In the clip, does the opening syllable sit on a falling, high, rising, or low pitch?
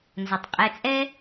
low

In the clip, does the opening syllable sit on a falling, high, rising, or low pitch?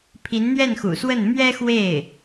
rising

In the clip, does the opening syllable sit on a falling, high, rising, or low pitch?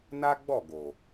high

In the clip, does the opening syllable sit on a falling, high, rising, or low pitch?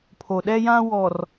low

